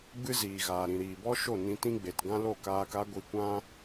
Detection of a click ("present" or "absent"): absent